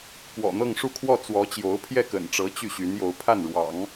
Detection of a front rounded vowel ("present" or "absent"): present